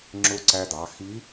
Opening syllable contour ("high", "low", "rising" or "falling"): rising